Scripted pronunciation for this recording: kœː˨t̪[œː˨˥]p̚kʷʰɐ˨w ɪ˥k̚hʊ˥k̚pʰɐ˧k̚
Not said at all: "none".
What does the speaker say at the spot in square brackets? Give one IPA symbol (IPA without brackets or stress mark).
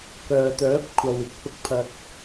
œː˨˥